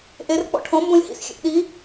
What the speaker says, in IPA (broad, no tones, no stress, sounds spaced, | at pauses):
ʔ e r k͡p ɔ̰ ʈʰ õ m b õ lʲ h ḭ s xʲ ḛ ʔ ɗ i